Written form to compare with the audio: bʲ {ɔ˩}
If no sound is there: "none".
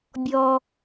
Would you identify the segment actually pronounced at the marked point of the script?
ɔ˩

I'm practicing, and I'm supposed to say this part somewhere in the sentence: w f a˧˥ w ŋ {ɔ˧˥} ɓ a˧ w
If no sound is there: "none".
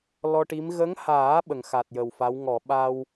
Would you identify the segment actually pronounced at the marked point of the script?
ɔ˨˩˨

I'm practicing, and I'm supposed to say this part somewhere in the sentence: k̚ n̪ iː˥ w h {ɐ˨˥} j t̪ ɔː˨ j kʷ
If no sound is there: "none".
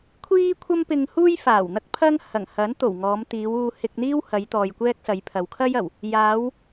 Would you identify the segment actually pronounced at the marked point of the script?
ɐ˨˧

